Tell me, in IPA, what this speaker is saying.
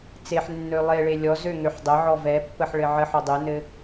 t͡s e ħ nː ø lˠ e ɭ e lʲ ɔ z ø ŋ ø ħ dˤ ə ʕ ɔ v ɛ pː ə ħ ɭ ɘ ʕ ə ħ ɔ dˤ ə n ɘ

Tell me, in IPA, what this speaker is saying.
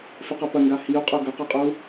f e q ɐ p ɐ ŋ ɡ a h i u̯ qʼ o ɡ ɐ q a qʼ o u̯

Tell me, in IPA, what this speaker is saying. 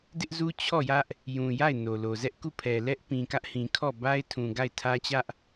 d ɪ˦ ʔ z u˦ t͡ɕʰ ɔ˦˨ j ä˦ ʔ | j ũ˨ j a˦˨ ɪ̯ n o˨ l o˨ z ɛ˦ ʔ k u˦˨ pʰ ɛ˨ l ɛ˦ ʔ p ĩ˨ k ä˦ ʔ h ĩ˨ kʰ ɔ˦˨ b a˦ ɪ̯ tʰ ũ˨ ɡ a˦˨ ɪ̯ tʰ ä˦ t͡ɕ ä˦ ʔ

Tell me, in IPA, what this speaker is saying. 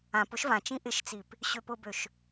ã p ʊ ʃ v ã t͡ʃ ĩ ʔ ɪ ʃ t͡s i p | ɕ ø p ʊ b ø ʃ

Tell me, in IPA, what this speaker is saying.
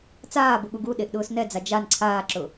t͡s aː b ʊ ɠ u ɡ u ɗ e ʔ ɗ ʊː s n ɛ d͡z a d͡ʒ a n ǀʰ aː ǁ ʊ

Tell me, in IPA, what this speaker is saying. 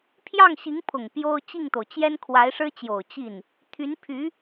pʰ j ɑ˥˩ ŋ ɕ i˧˥ ŋ pʰ ʊ˨˩ ŋ p j o˥ ʊ̯ t͡ɕ i˥˩ ŋ t̪ o˩ ʊ̯ t͡ɕ j ɛ˥ n kʰ w a˧˥ ɪ̯ ʂ ɻ̩˥ t͡ɕ j o˨˩ ʊ̯ t͡ɕ i˥˩ n | t̪ʰ y˧˥ n pʰ y˧˥

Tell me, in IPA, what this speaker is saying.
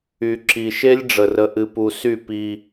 y˨ ǁ i˨ ʃ e˦ lʲ ɖ͡ʐ ə˦ r ə˦ ʔ ɨ˦ p u˦ s y˦˨ p i˦

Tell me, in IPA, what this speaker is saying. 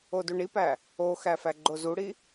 o d u ɳ i p æ | o x æ f æ ɡ͡ǃ o z u ɽ i

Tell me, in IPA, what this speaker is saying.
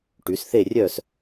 ʈ y˨˦ s θ e˥˧ rʲ œ˥˧ s

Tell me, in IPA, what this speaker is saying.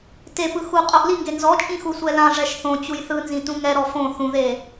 t e p ɯ x u qʼ o ʔ l i ŋ ɡ e n z ɔ t͡ʃʼ ĩ x u sʷ ɛ l ã ʐ ɛ ʃ θ õ t͡ɕ u j θ ɯ n z ĩ t ũ ŋ ɛ ɾ ɔ f õ θ ũ ð e

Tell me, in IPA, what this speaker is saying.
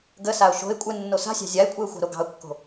ɡ ə s a ʊ̯ ʃ o̤ ɪ̯ kʷʼ ɘ nː o s a̤ sʲ ɑ̤ zʲ a ɪ̯ kʷʼ ɘ ʊ̯ xʷ ɑ̤ ɾ o ɡ ɑ̤ ʊ̯ kː o̤

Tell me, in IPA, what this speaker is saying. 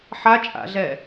ħ a t͡ʃʼ a̰ ɮ ɛ

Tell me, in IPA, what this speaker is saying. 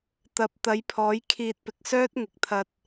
t̪ ɐ˨ p̚ t̪ ɐ˨˥ j pʰ ɔː˨˥ j kʰ iː˧ t̚ p ɪ˨˥ k̚ s œː˥ t̚ ŋ ɪ˨˥ k̚ t̪ʰ ɐ˧ t̚

